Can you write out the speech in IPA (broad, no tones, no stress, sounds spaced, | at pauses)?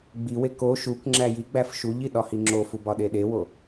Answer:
ɡ͡b i w e k o ʃ u k ŋ͡ǁ æ j i ɡ͡b æ f ʃ u ʎ i ɗ ɒ h i ŋ͡ǁ o f u b ɒ ɗ e ɗ e w o